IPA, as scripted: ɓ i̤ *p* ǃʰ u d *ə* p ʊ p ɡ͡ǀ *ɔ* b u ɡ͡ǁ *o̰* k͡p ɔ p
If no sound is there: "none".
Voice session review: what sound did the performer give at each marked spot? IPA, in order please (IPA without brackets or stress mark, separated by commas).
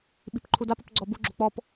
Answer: p, a, ɔ, o̤